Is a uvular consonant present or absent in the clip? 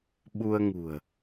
absent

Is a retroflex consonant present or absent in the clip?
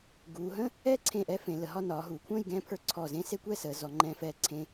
absent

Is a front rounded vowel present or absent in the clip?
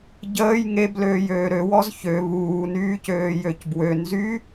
present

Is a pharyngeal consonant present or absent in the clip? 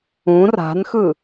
absent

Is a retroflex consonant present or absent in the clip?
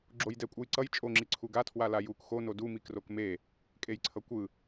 absent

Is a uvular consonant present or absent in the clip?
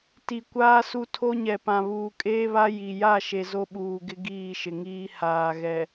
absent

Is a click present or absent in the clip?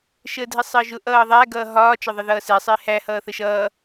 absent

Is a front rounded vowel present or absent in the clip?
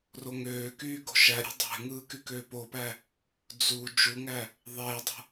present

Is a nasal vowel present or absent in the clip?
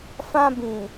present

